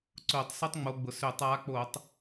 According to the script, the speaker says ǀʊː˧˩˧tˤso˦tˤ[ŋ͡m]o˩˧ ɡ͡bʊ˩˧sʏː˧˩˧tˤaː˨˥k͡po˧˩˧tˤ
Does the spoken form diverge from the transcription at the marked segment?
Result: no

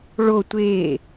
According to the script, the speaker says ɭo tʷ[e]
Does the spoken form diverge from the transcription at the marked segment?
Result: no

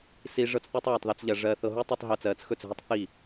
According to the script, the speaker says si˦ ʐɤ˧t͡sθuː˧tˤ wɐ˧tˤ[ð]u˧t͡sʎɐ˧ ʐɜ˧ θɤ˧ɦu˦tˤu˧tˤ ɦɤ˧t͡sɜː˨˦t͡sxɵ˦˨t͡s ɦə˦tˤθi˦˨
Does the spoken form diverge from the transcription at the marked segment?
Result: no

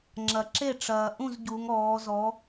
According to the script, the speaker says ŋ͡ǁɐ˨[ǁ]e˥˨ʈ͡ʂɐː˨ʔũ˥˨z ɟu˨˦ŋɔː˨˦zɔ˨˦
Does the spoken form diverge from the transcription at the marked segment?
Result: no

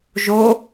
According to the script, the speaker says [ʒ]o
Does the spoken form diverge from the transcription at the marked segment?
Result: no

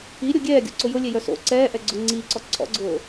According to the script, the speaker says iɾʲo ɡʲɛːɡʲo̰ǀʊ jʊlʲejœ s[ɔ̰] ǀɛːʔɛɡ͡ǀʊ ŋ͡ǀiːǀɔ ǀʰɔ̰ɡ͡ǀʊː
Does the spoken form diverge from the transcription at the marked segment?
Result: yes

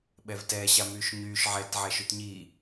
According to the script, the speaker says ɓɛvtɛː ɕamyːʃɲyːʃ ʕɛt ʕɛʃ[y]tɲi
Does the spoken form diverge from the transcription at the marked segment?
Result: no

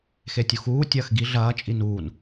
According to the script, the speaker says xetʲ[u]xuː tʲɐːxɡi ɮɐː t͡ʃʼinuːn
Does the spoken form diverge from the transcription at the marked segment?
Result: no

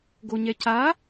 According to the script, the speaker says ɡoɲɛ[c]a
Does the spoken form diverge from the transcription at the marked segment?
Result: no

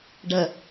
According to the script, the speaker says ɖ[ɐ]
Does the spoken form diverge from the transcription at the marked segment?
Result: no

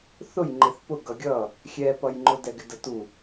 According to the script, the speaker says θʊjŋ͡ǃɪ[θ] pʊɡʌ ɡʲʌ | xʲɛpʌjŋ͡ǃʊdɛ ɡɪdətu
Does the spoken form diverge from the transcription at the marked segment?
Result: no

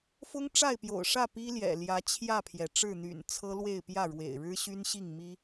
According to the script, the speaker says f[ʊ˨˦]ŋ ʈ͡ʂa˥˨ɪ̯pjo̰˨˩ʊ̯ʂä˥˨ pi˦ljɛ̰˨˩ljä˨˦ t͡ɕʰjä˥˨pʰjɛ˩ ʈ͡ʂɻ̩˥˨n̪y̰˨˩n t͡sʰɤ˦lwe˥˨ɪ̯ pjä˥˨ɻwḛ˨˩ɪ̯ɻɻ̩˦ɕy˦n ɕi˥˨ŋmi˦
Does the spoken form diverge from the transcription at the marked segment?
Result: yes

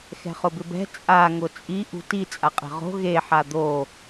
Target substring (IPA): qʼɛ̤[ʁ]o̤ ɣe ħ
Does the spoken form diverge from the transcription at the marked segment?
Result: no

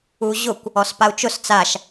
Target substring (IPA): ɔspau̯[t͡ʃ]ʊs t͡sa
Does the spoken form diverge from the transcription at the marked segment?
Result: no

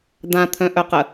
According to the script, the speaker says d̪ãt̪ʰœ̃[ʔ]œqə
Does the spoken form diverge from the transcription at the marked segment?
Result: no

